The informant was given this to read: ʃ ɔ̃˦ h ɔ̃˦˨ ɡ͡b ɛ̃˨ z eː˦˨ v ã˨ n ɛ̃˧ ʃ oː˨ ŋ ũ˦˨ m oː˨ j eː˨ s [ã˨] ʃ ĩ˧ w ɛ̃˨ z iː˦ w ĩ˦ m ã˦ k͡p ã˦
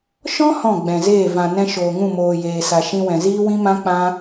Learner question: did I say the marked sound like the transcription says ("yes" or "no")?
no